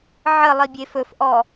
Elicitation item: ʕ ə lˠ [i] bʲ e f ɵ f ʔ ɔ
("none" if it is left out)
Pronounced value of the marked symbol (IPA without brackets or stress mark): i